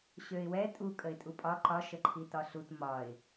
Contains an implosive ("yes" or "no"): no